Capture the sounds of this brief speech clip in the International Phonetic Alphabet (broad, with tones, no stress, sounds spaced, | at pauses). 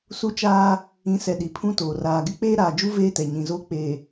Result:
s u˦ t͡ʃ aː˦ | ĩ˨˦ s ɛ˨ ɗ i˨ pʰ ũ˦ t oː˨ r aː˨ ɡ ɪ˦ k͡p eː˦ ɾ aː˨ d͡ʒ u˦ v eː˦ t ɛ˨ ɲ ĩ˨ z oː˦ k͡p eː˨